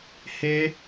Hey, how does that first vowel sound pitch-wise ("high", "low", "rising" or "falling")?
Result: high